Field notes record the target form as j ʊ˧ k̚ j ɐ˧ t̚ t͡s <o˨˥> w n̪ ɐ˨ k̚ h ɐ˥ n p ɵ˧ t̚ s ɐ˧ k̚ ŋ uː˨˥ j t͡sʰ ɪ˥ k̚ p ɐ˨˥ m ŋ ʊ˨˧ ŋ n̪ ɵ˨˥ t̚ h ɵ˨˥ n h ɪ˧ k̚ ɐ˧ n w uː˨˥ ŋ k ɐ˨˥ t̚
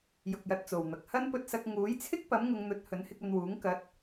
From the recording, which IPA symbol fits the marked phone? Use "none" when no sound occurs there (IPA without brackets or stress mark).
o˨